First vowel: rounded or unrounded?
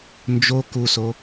rounded